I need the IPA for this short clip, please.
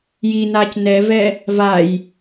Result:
j i n aː c n ɛ v ɛ | v a j

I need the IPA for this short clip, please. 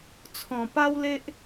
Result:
t͡sʰ ɔ̃˨˩ p a˦ w l e˦ ʔ

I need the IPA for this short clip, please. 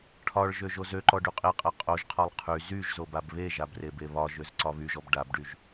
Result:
ʈʰ ɒ ɭ ʒ ø ʒ o z ø ǃ ɔ ɖ y qʼ e qʼ a qʼ o ʒ qʰ ɒ lˠ qʰ y z y ʒ z o b a b β e ʒ a b r e b e β ɒ ʒ ø z ǀ ɒ β y ʒ ɔ b ɖ a b ɖ y ʒ

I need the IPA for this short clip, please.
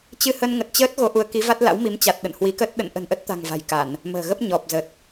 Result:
t͡ɕ ɨ˧ h ə˧ n ŋ ə˨˩ t̚ t͡ɕ əː˦˥ t̚ ɣ o˨˦ ʔ u˨˦ ə̯ k i˨˦ v a˦˥ t̚ l a̰˧˥ w m i˨˦ m t͡ɕ a˨˩ t̚ ɗ ə̰˧˨ n h w i˨˦ k ə˦˥ t̚ ɗ ə̰˧˨ n ʔ ə̤˨˩ n ʔ ə˦˥ t̚ t̪ a̤˨˩ ŋ v a̤˨˩ j k a˧˩˨ n | m ə̤ː˨˩ ɣ ə˦˥ p̚ ɲ ɔ˨˩ p̚ z ə˨˩ t̚

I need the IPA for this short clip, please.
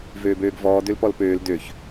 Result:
v øː b øː ɡ v ɔː d ø l p ɔ l p øː l d ø ç

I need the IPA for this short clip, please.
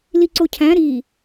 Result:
l i ǀ o cʰ æ̃ ɾ i

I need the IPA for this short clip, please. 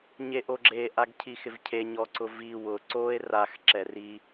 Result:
ɲ e ʔ o ɡ͡ǁ e ʔ a ɡ cʰ i x ɪ v cʰ e ɲ ɔ ǀ ʊ v i w ʊ ǀ o e̯ r a x ǁ ɛ r i

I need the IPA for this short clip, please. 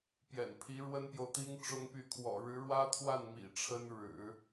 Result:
p j ɛ̰˨˩ n pʰ i˧˥ ɻ w ə˥ n p j o˨ ʊ̯ t̪ i˥ ŋ ʈ͡ʂ ʊ˥ ŋ p y˥˩ kʰ w ɔ̰˨˩ ɻ ɻ̩˧˥ ɻ w ä˥ t̪ʰ w a˥˩ n m ḭ˨˩ ʈ͡ʂʰ ə˥ n ɻ ɻ̩˨˩˦

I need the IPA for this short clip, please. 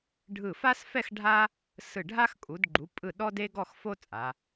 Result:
ɖʱ ɯ˧˩ f a˥ s f ɛ˥˧ x ɖʱ a˥ | s ɯ˧˩ ɖʱ a˥ x kʼ u˩˧ d ɡ͡ǃ u˩˧ pʼ ɯ˧˩ ɗ ɔ˥ d e˥ ɡ ɔ˥˧ x f o˥ t͡sʼ a˩˧

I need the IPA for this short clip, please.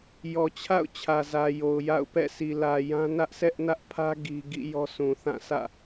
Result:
j ɔ˨ t͡ɕʰ a̰˦˨ ʊ̯ t͡ɕʰ ä˨ z ä˨ j o˨ ʊ̯ j a̰˦˨ ʊ̯ p ɛ̰˦˨ sʰ i˨ l ä˨ j ã˦ n ä˦ ʔ s ɛ˦ ʔ n ä˦ ʔ pʰ ä˦ ɡ i˦ ɡ ḭ˦˨ j ɔ˦ sʰ ũ˨ θ ã˦˨ sʰ ä̰˦˨

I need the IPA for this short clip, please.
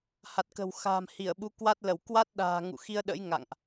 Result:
h a˨˩ t̚ k ə̤˨˩ w x a̤ː˨˩ m h i˧˩ ə̯ ɓ u˨˦ k w a˦˥ t̚ l ə˧˩ w k w a˦˥ t̚ ɗ a̤ː˨˩ ŋ ṵ˧˨ x i˧ ə̯ ɗ ə̰˧˥ j ŋ a̰˧˨ ŋ ʔ

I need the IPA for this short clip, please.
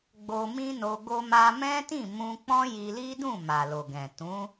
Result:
ɡ͡b o˧ m ĩ˦ n o˧ ɡ o˧ m a˧ m ɛ̃˦ t ĩ˦˨ m ũ˧ k͡p ɔ̃˦ j i˧ l i˦ d ũ˦˨ m a˨ l o˨ ɡ ɛ̃˨ t ũ˨˦

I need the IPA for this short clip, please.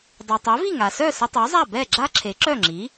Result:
dˤ u˩ tˤ œ˩˥ v i˥˩ ŋ a˩ s œ˥˩ s ə˧ tˤ u˩˥ zˤ a˥˩ b ɛ˥˩ ɡ͡ǁ a˥ ǁʰ e˩˥ ǁ œ˥˩ ŋ͡ǁ i˩˥

